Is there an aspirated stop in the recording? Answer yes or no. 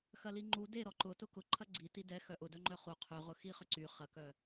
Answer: yes